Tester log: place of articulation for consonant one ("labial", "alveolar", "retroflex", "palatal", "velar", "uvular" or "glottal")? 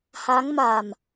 glottal